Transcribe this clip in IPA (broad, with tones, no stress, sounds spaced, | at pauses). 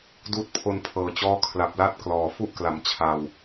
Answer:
d uː˦˥ t̚ pʰ o˧ n pʰ ɤː˨˩ t͡ɕ ɔː˥˩ kʰ l a˨˩ p̚ l a˥˩ t̚ k l ɔː˨˩ f u˥˩ ʔ k l a˩˦ m t͡ɕʰ a˧ w